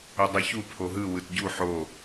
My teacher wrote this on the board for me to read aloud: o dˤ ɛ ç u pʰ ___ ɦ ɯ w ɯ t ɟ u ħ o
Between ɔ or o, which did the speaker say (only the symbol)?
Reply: o